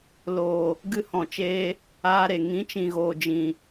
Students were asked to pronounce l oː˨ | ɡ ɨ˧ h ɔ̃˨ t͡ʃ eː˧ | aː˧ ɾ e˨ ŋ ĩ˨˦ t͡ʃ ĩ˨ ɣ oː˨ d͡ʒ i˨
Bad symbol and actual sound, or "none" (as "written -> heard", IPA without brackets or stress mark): i˨ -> ĩ˨